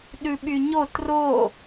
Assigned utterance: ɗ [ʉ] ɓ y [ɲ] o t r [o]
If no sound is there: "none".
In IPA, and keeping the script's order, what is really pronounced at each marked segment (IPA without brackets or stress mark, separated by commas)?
ʉ, ɲ, o